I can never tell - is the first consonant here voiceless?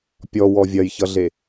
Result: yes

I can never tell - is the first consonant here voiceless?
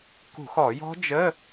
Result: yes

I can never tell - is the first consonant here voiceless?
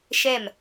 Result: yes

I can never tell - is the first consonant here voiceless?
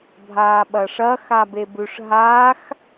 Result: no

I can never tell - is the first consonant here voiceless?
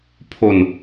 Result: yes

